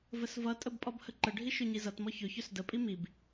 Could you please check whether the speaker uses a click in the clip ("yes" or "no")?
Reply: yes